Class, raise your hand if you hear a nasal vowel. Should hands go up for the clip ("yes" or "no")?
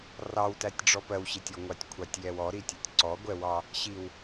no